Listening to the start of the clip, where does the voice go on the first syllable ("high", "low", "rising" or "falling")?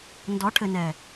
rising